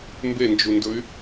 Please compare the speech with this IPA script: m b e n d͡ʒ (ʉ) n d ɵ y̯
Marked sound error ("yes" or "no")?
yes